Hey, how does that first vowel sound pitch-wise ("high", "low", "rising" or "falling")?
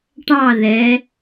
falling